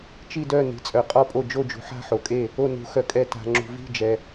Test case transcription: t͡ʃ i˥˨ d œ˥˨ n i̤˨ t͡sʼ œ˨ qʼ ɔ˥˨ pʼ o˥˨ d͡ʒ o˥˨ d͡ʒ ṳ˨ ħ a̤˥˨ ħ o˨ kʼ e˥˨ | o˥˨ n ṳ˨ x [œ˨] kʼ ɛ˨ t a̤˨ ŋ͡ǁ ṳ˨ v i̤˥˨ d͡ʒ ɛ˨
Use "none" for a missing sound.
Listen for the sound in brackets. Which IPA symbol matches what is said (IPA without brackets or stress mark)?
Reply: œ˨